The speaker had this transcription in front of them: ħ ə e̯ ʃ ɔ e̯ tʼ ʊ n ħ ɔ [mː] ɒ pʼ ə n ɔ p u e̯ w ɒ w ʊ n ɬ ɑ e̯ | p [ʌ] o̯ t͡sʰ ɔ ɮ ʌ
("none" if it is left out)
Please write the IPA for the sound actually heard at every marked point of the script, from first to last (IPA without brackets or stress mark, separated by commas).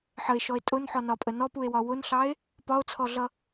n, ɒ